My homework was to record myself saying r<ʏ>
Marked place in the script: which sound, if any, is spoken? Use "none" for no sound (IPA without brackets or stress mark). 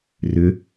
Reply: ʏ